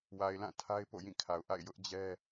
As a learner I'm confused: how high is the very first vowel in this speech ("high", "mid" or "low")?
low